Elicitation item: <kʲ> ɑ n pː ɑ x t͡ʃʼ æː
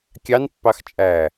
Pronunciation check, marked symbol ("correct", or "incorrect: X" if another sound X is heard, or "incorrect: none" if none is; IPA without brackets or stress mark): correct